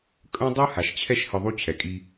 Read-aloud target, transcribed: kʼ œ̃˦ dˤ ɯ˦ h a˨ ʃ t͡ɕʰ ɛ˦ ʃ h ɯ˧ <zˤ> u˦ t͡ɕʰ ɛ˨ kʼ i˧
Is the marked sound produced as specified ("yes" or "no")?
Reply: no